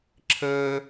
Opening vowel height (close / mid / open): mid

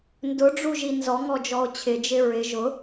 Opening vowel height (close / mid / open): close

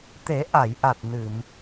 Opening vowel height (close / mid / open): mid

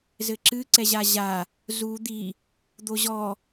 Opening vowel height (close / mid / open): mid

